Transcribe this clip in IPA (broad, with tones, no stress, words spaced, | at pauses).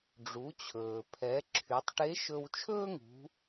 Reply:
ɖ͡ʐu˩˧t͡ɕʰɵː˩ pʰɛ˩˧ ǁʰy˩˧tˤʈe˧˥ʃɵ˧w t͡ʃʰɵː˥ŋṳ˩˧